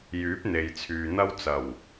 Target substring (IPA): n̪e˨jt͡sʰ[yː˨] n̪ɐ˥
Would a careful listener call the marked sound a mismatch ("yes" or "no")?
no